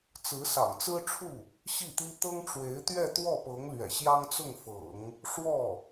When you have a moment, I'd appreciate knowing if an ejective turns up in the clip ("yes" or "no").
no